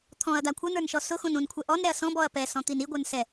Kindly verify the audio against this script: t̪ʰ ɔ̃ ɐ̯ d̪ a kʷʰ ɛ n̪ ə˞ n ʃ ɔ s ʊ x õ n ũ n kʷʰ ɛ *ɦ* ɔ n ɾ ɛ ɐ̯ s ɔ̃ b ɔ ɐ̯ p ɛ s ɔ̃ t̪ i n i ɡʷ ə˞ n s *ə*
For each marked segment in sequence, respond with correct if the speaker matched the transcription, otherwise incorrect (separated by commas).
incorrect, incorrect